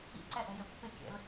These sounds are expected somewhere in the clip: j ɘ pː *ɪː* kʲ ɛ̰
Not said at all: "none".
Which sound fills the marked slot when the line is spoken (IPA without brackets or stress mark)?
ɪ